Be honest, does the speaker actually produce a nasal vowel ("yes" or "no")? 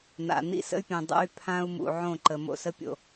yes